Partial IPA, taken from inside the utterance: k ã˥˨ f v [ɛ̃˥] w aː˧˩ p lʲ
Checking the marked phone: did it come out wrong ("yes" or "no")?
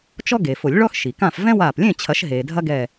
no